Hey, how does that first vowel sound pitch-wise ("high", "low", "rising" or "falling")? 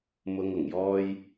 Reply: low